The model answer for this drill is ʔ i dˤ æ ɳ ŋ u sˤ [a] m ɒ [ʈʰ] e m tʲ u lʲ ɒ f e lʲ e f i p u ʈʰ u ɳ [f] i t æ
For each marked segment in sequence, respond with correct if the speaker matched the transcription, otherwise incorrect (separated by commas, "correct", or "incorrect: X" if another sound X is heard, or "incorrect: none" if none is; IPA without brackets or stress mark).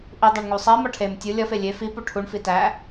incorrect: æ, correct, correct